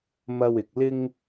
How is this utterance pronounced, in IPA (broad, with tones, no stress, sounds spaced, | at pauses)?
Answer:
m ɐ˧ w ɪ˨ k̚ l ɪ˥ ŋ